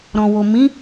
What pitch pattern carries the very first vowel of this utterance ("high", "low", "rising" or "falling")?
low